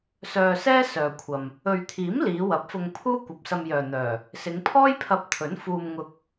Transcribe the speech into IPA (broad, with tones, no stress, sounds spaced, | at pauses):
s œː˧ s ɛː˥ s œː˧ kʷʰ ɐ˧ m | ɵ˨ ɥ t̪ʰ iː˨˥ m l iː˨˧ w ɐ˨˥ p̚ f ʊ˧ ŋ pʰ uː˥ kʷ ɐ˨ p̚ s ɐ˧ m j œː˨ n̪ œː˨˩ | s ɪ˨˧ ŋ pʰ ɔː˥ j pʰ ɐ˧ p̚ t̪ʰ ɵ˨˥ n f uː˧ m ŋ ʊ˧ k̚